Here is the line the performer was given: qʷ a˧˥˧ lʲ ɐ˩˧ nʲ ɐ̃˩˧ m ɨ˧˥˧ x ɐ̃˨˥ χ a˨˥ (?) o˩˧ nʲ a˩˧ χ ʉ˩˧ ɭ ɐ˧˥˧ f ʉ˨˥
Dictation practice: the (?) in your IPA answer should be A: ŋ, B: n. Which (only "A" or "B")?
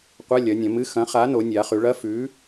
B